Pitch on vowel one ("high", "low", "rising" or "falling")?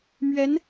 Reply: rising